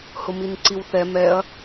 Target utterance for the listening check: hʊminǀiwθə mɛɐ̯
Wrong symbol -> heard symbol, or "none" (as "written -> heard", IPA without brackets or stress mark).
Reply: ə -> ɛ